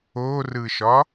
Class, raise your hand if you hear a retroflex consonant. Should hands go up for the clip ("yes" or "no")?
no